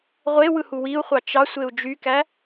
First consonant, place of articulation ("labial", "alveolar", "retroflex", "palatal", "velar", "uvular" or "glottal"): uvular